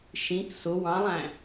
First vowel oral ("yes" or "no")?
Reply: no